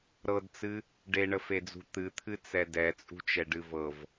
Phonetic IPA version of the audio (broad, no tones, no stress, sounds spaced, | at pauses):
ɾ ɤ d t͡s ɨ | ɖ e ɳ ə f e d͡z ṳ t̪ ɨ t̪ʰ ɨ t͡s ɛ d ɛ t͡sʼ ṳ t͡ʃ ɛ ɖ ɨ v ɤ v